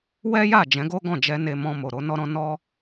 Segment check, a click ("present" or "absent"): absent